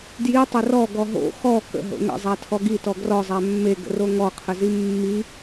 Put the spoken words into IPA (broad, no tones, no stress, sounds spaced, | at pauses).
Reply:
d j i tˤ ə r ɔ ɡ ɔ ɦ o̰ x ɔ k ə̰ ɦ o̰ ŋ ə̰ zˤ æ tʰ ɔ ɡ i t ɔ ɡ r ɔ zˤ æ mː e ɡ ə̰ r o ŋ ɔ qʰ ə z i mː i